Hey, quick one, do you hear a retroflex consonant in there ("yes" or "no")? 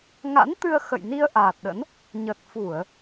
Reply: no